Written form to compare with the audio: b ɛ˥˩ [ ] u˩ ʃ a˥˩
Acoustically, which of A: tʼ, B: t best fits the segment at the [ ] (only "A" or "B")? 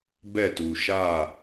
B